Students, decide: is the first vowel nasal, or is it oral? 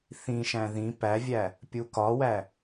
nasal